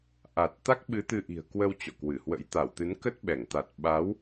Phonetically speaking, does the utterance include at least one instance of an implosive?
yes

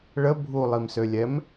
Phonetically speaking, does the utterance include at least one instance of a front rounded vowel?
yes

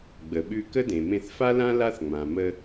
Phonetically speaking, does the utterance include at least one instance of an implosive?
yes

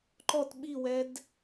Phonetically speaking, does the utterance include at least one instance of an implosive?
yes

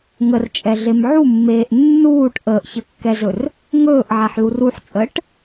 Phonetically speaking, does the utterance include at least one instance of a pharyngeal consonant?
yes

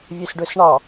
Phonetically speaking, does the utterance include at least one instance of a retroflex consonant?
yes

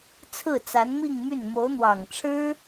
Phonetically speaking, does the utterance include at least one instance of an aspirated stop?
yes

